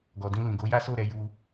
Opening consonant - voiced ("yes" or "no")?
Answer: yes